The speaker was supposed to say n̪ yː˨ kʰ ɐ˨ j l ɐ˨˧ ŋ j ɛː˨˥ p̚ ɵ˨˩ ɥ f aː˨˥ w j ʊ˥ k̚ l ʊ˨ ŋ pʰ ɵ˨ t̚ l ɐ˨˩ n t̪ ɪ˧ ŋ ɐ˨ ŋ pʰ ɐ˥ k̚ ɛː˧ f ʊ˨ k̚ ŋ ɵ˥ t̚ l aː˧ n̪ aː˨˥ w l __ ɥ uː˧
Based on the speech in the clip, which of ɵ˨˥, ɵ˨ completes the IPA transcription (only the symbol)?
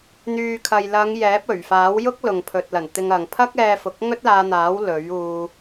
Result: ɵ˨˥